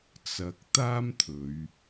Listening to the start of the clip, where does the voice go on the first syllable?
low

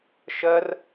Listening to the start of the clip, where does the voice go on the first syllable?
high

